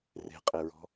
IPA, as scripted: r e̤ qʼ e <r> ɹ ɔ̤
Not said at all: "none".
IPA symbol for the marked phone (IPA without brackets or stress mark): none